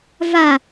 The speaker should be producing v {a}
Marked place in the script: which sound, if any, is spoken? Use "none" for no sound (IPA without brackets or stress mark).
a